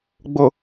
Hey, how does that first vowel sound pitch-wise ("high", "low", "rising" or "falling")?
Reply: low